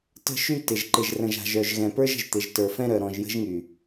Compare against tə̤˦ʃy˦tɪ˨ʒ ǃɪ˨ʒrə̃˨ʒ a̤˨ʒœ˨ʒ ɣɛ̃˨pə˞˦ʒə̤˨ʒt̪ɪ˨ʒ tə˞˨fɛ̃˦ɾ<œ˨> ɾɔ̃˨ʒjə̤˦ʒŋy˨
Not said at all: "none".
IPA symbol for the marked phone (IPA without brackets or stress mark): œ˨